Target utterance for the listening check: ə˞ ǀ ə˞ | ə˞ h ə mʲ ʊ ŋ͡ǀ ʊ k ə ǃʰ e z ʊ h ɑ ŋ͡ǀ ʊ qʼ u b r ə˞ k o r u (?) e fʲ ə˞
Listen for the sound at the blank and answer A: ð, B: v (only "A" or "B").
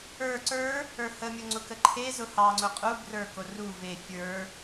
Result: B